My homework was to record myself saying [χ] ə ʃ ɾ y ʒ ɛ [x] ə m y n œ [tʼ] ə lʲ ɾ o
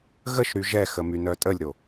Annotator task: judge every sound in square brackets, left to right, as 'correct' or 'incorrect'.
incorrect, correct, correct

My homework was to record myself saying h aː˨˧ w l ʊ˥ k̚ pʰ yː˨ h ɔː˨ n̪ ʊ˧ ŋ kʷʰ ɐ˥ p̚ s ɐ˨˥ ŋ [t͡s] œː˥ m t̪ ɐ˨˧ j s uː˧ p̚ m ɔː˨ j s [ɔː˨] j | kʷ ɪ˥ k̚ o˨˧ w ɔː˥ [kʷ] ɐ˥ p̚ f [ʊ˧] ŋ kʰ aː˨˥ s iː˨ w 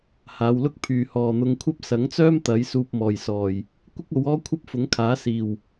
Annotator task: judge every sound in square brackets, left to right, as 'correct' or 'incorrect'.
correct, correct, incorrect, incorrect

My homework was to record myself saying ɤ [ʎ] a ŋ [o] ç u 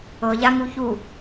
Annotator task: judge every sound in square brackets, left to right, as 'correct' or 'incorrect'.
correct, incorrect

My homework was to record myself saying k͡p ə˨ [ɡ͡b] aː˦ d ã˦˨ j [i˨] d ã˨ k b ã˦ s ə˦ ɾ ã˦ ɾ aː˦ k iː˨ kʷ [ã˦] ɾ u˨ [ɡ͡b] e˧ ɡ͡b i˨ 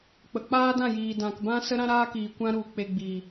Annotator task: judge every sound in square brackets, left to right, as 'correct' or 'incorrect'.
incorrect, incorrect, correct, incorrect

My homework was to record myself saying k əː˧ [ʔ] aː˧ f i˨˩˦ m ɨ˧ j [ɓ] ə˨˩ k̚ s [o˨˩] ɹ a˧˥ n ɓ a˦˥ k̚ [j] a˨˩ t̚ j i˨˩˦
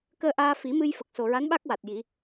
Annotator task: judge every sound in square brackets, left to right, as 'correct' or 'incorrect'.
correct, incorrect, correct, incorrect

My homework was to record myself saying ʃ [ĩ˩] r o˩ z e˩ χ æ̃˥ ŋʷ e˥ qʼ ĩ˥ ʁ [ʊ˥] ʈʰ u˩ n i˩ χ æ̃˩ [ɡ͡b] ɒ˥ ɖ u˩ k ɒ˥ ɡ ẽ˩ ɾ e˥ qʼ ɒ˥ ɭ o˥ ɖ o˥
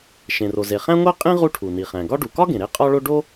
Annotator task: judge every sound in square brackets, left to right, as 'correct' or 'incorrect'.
incorrect, incorrect, incorrect

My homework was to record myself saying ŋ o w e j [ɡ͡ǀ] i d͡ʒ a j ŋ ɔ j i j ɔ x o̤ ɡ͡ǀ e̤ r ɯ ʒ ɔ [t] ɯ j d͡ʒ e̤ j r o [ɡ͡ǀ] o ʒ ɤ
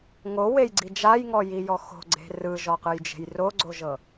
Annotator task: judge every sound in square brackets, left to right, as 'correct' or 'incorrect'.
correct, incorrect, correct

